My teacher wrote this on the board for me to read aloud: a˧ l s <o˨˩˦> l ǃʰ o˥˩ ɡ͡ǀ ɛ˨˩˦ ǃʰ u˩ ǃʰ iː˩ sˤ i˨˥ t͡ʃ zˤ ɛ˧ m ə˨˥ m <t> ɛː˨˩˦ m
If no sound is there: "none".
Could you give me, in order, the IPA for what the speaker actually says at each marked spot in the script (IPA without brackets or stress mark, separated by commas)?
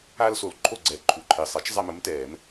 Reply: o˩, t